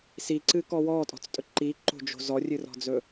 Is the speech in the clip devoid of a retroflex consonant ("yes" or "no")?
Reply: yes